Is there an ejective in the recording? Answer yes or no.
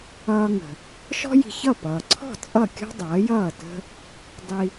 yes